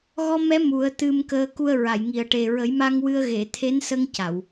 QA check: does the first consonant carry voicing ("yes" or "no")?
yes